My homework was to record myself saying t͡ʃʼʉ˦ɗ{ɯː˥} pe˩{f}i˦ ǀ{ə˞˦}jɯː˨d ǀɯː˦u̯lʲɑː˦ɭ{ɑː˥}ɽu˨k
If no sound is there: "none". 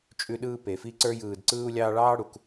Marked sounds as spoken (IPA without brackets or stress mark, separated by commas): ɯː˥, f, ə˞˦, ɑː˥